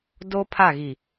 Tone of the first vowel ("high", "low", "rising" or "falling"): high